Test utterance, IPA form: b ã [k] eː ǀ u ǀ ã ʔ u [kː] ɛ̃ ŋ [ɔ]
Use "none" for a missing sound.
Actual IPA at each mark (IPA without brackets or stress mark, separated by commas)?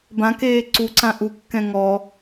k, kː, ɔ